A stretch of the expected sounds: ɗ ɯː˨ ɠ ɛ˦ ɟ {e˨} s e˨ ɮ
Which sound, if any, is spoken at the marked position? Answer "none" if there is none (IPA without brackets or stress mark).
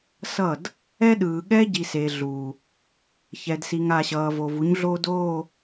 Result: i˨